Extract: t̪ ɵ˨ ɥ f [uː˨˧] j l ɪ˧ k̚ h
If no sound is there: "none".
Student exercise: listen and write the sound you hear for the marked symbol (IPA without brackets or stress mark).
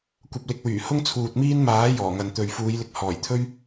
uː˨˧